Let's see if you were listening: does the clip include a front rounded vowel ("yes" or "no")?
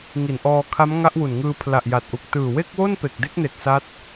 no